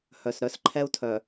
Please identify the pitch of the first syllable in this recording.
low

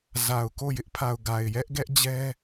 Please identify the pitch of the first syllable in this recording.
low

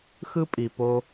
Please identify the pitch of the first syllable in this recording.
high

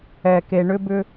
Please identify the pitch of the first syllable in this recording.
low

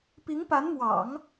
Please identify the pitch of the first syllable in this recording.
rising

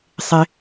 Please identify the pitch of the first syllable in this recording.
low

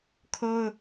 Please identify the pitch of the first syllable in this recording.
high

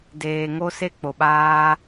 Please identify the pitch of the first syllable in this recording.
low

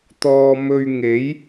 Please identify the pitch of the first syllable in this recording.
low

